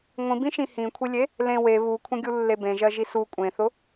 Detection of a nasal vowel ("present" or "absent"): present